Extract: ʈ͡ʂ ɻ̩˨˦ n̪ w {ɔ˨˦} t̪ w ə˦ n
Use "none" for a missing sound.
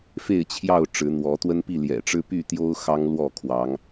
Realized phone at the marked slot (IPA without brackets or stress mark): ɔ˨˦